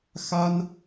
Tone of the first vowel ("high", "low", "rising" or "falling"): high